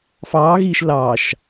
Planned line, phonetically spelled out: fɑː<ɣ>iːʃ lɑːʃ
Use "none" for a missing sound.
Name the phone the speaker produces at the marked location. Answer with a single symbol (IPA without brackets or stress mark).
ɣ